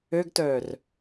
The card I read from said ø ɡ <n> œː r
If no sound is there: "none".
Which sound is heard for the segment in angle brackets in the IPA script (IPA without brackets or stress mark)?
t